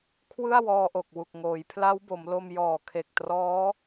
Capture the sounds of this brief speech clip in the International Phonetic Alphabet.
kʰ w ɯ˥˩ a̯ w ɔː˧ ʔ o˨˩ k̚ w u˨˩ k̚ ŋ oː˩˦ j pʰ l a˦˥ w b o˩˦ m l o˧ m j ɔː˨˩ kʰ e˨˩ k̚ t r ɔː˦˥

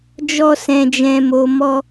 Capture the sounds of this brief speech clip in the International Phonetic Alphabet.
d͡ʒ ɔ˧ s ɛ̃˨ d͡ʒ ɛ̃˨ m o˨ m ɔ˧

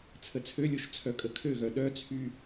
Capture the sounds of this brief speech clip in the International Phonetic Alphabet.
t͡sʰ ə t͡sʰ ø lʲ o ʃ t͡sʰ œ kʼ ə kʰ ø ɣ œ ɗ œ t͡sʰ y

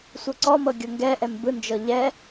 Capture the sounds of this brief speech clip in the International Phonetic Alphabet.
sʷ ɤ ǀ ɔ m ɤ ɡʲ ɤ ŋ ɡ ɛ ʔ ɛ m b ɯ n d͡ʒ ɤ ʎ ɛ

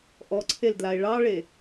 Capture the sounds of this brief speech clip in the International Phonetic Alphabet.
ʔ ɔ ǀʰ e l d l a e̯ ɭ ɑ ɭ e

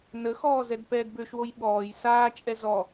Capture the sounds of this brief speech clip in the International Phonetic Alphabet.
n ə x ɔː z ɛ d p ɛː d b ø ʃ w o j ɓ ɔː j s aː t͡ʃʼ ɛ z ɔ

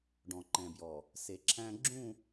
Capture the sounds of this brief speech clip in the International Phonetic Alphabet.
ɖ ɔ̃˨ ǃ ɛ̃˨ b j ɔ˨ | s e˨ ǁʰ æ̃˦ ɡ͡ǁ ũ˦˨

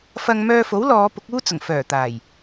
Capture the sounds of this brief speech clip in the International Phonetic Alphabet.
f ɐ˧ ŋ m œː˧ f o˨˥ w l ɔː˨˧ p ʊ˨˥ k̚ uː˥ t͡s ʊ˨˩ ŋ f œː˨˩ t̪ aː˨˩ j

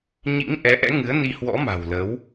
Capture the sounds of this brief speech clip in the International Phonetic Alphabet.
ɲ ḭ˧˥ ŋ ʔ ɛ˨˦ ʔ ɛ̰˧˥ ŋ ɨ˨˦ ə̯ n i˧ h w ɔ̰˧˥ m a̤˨˩ w l əː˨˦ w

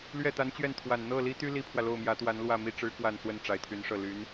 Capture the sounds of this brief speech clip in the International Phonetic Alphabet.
l ɥ ɛ˥˩ t̪ a˧˥ n t͡ɕ ɥ ɛ˥˩ n t̪ʰ w a˨˩ n n̪ ɤ˥˩ l i˥ t̪ y˥ l i˥ pʰ w ä˨ l o˥˩ ʊ̯ m j ä˧˥ t̪ w a˧˥ n l w ä˥˧ m i˥˩ ʈ͡ʂ ɻ̩˧˥ k w a˨˩ n s w ə˥˩ n ʈ͡ʂ a˧˥ ɪ̯ t̪ʰ y˧˥ n ʂ ɤ˥˩ l y˧˥ n

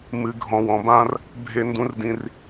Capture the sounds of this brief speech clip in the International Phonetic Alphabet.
m ɨ˨ ɡʱ ɔ̃˨ w ɔ̃˨ b ã˦ r | bʱ e˦ n d ũ˦ r d ĩ˦ r

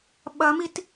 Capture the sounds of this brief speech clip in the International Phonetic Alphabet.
ɓ ɐ m i t

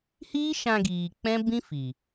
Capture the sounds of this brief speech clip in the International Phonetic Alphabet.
h iː˦ ʃ ã˧ ɡ iː˨ k͡p ɛ̃˦ b ĩ˦ f i˨

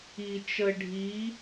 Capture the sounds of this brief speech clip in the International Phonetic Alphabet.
i t͡ʃ ə ɖʱ i

